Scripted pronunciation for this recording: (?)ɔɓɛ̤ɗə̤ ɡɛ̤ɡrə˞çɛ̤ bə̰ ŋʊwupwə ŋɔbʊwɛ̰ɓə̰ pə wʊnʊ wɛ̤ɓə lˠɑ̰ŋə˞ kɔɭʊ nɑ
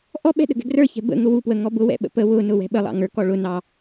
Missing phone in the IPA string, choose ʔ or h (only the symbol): ʔ